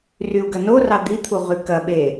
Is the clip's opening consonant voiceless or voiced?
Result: voiced